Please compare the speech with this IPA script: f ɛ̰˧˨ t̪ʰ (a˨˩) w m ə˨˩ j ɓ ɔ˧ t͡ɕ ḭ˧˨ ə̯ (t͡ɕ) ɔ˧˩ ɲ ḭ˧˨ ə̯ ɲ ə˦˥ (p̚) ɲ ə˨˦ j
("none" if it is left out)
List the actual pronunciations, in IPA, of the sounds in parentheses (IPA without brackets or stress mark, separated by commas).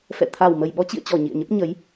a˨˩, t͡ɕ, p̚